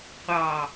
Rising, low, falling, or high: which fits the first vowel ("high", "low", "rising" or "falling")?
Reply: low